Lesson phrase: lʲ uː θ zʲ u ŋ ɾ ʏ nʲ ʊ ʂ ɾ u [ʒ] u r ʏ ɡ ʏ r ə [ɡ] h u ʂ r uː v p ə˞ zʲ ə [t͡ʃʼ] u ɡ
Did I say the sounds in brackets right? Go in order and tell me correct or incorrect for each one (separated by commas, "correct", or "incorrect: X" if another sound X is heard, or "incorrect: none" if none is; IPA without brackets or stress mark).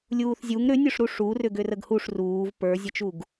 incorrect: ʂ, correct, incorrect: t͡ʃ